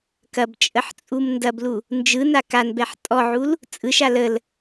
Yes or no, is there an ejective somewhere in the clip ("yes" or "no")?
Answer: yes